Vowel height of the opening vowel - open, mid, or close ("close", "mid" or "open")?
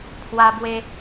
open